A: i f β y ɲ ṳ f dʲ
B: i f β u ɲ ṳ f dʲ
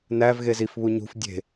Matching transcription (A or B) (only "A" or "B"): B